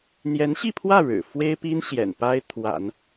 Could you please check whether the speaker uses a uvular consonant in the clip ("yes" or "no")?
no